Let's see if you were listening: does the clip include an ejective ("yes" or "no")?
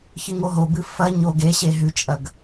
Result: yes